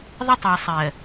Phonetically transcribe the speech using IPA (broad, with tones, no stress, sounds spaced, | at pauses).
ðˤ ə˦ tˤ e˨ sˤ ɜ˨